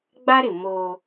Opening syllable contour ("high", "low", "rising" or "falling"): high